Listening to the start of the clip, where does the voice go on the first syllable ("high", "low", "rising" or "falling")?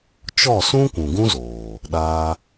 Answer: falling